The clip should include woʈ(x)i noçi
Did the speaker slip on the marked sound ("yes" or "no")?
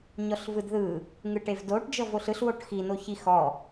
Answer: no